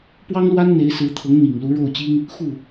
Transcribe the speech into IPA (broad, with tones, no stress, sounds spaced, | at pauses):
p w ɑ˥ ŋ l w a˥ n n̪ e˧˥ ɪ̯ s ɹ̩˧˥ t̪ʰ ɤ˧˥ ŋ n̪ i˨˩ ŋ l u˧˥ ɻ o˥˩ ʊ̯ t͡ɕ i˥ ŋ | x u˥˩